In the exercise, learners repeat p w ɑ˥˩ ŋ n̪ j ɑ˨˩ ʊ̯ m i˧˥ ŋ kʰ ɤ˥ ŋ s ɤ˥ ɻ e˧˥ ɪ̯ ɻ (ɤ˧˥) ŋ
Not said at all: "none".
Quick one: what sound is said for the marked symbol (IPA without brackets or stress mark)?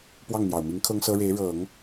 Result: ɤ˨˩˦